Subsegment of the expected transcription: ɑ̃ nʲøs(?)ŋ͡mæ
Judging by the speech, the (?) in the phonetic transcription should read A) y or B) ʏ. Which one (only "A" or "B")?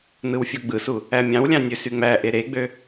A